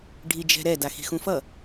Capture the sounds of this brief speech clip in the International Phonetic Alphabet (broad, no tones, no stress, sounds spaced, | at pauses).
ɖʱ i d͡ʒ ɛ̤ ɾ ɛ d a x i̤ x ũ f ʌ